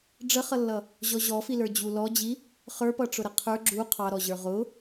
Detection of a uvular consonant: present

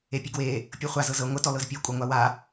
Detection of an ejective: present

